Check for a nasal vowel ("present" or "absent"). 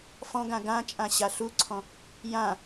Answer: present